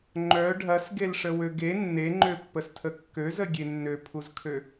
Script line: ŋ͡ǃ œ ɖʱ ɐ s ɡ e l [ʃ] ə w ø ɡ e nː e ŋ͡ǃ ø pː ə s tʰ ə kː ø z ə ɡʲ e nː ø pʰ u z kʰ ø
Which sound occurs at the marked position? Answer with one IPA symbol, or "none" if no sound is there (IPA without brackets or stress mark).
ʂ